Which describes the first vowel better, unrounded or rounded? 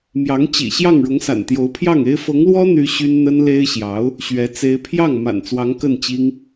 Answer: unrounded